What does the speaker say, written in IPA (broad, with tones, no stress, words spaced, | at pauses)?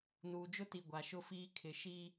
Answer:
nuː˨d͡ʒʊ˦ti˨ ɡʷa˨ʃʊ˦fiː˦ kʰɪ˨ʃi˦